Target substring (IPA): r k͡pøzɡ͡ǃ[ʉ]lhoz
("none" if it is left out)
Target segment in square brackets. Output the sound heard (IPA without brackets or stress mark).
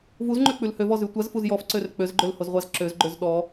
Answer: ø